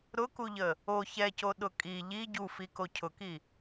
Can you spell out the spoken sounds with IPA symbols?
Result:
ɾʊkuʎə | o çɛcoɗʊ kʼi ʎi ɟufiko cʰʊki

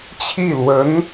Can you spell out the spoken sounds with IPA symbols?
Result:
t͡ɕʰi˥˩lwə˧˥n

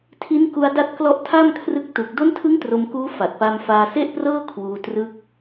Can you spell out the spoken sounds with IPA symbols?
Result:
tʰi˦˥nku˧a̯da˦˥t̚ klɔ˦˥ʔtʰa˥˩mkʰrɯ˦˥k̚ tu˨˩k̚ do˦˥ntʰɯ˦˥ŋ tro˧mkuː˦˥ fa˨˩t̚pa˧m faː˧se˥˩ʔprɤː˥˩ kʰwuː˧ trɯ˦˥k̚

